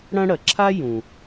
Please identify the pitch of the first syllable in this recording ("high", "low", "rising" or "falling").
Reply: high